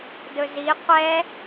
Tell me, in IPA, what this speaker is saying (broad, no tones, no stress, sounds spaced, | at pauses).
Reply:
d ɵ z i qʷ ɛ